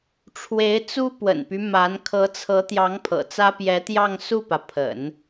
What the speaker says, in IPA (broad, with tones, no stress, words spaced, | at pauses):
ʈ͡ʂʰwe˧˥ɪ̯t͡su˥ pwə̰˨˩npy˦ ma˧˥n kʰɤ˧˥t͡sʰɤ˧˥t̪jɑ˧˥ŋ pʰɤ̰˨˩t͡sä˥ pjɛ˧˥t̪jɑ˥˧ŋsu˥˩pä˩ pʰə̰˨˩˦n